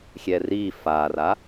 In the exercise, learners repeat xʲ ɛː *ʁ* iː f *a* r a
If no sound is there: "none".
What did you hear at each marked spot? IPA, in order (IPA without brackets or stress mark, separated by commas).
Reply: r, aː